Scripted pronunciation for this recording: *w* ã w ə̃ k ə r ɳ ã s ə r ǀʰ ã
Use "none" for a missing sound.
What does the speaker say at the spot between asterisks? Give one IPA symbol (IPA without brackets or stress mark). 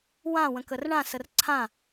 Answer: w